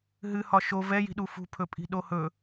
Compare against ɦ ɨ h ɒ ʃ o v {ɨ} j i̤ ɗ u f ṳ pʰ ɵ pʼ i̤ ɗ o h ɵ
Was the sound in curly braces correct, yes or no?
no